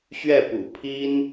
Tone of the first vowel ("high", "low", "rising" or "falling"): falling